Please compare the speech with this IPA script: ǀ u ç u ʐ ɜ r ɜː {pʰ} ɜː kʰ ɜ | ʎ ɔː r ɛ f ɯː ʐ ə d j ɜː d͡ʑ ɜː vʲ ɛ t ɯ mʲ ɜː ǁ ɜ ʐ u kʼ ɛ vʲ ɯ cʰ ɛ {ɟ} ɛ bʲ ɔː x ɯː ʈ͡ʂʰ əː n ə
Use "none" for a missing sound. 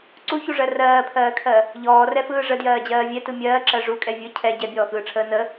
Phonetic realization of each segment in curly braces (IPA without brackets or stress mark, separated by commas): pʰ, ɟ